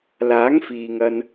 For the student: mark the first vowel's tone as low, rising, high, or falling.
rising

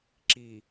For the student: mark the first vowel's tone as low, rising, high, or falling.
low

